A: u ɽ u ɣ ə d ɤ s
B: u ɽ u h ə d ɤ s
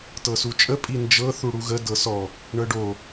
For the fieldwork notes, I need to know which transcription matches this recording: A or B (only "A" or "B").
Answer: A